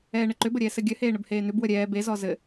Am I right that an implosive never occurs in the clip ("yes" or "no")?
yes